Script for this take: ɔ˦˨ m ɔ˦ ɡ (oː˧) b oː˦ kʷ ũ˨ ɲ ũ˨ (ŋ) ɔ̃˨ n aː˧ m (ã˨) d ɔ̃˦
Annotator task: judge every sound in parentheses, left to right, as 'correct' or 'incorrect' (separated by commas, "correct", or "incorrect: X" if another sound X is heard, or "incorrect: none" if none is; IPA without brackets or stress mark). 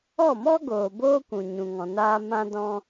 incorrect: oː˨, correct, incorrect: ã˦